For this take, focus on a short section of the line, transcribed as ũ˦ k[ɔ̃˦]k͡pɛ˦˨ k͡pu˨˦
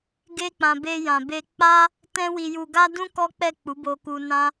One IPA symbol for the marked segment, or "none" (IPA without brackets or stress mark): ɔ˦